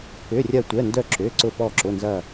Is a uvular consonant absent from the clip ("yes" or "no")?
yes